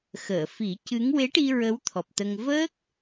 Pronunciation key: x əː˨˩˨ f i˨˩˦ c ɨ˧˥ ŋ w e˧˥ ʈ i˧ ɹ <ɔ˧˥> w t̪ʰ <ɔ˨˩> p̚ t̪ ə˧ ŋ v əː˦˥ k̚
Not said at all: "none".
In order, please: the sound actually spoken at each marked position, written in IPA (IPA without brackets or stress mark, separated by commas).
ə˧˥, ɔ˨˩